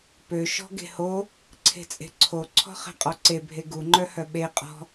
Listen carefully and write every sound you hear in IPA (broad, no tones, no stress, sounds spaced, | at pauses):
p ø ʃ ɔ̤ ɡ e̤ h o | ǀʰ e̤ t͡sʼ e̤ ǀʰ o ǀʰ ɔ̤ χ ɛ̤ qʼ ɔ ǀ e bʱ e ɡ u ŋ͡ǃ œ h œ ɓ e qʼ ɔ̤